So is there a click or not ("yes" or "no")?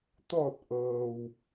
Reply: no